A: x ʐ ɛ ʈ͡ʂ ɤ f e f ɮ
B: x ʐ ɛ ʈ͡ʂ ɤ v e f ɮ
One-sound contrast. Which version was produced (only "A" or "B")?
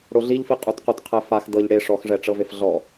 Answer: B